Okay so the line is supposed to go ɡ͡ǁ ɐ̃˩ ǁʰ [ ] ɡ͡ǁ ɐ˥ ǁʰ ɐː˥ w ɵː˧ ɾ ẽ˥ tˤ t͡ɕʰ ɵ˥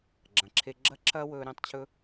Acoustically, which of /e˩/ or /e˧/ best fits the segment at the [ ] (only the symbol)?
e˧